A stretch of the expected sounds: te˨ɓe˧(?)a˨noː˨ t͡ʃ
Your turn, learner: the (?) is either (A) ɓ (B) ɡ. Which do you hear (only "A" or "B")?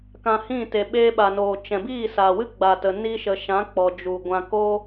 A